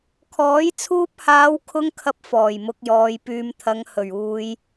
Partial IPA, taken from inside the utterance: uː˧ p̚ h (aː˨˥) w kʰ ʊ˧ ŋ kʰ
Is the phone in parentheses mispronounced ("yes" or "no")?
yes